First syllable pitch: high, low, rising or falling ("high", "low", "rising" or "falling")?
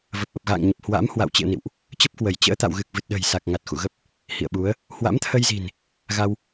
low